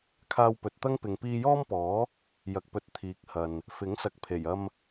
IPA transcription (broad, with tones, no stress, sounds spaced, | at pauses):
kʰ aː˧ w p ɵ˨ t̚ t̪ ɐ˥ ŋ p ɪ˨ ŋ p iː˧ j ɔː˥ m p ɔː˨˥ | j ɐ˨ k̚ p ɵ˨˥ t̚ t̪ʰ iː˨˥ k̚ h ɐ˨ n | f ɪ˨˥ ŋ s ɐ˨ k̚ pʰ e˨˩ j ɐ˧ m